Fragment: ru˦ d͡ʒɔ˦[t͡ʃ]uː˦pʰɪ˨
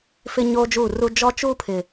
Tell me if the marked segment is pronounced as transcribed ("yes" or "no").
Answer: yes